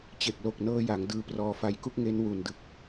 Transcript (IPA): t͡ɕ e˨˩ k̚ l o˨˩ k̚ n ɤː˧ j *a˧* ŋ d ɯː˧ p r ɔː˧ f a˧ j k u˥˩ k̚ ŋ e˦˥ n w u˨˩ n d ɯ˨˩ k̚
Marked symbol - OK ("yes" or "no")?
no